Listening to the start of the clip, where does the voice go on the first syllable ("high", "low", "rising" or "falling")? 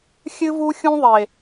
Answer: high